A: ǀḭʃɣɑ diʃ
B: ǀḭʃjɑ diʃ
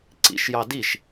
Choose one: B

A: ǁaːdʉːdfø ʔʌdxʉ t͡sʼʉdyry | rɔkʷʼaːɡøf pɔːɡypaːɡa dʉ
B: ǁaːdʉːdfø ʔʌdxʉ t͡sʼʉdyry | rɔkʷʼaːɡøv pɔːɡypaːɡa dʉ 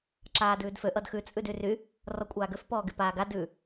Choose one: A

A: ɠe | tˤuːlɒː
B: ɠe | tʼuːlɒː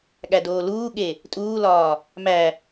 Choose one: B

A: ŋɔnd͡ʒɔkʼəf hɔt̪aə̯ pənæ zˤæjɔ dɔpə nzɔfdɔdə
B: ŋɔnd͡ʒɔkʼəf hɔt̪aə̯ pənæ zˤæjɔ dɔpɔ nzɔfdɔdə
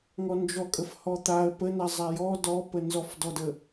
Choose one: A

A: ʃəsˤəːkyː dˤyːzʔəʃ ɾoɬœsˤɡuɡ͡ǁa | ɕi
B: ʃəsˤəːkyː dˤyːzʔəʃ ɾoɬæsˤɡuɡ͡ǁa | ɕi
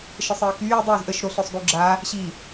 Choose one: A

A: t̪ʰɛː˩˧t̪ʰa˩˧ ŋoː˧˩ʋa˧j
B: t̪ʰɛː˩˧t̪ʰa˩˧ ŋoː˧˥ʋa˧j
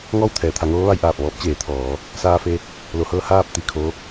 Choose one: B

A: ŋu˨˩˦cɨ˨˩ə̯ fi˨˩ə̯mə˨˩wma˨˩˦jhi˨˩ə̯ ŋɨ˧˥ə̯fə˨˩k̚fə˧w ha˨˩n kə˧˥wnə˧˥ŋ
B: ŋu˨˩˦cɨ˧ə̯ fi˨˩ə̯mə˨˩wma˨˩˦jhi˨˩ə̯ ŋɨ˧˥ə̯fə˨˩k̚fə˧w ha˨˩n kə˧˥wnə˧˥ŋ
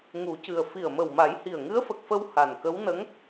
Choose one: A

